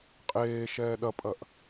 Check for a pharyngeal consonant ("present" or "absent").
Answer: absent